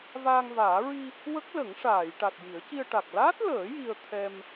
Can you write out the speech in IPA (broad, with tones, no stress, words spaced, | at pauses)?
vaː˧ŋvaː˨˩˦ ɹi˧ | wə˦˥k̚lə˨˩˦ŋʂaː˨˩˨j ʈa˨˩t̚ji˨˩˦ə̯ci˧ə̯ʈa˨˩k̚ laː˦˥t̚ləː˨˩˦ ji˧ə̯t̪ʰɛ˧m